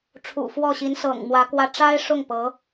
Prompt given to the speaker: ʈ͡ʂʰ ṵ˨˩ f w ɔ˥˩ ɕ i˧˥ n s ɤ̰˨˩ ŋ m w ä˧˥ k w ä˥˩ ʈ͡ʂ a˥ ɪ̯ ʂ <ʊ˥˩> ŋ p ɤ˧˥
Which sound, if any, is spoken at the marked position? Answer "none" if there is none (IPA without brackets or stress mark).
ʊ˥˩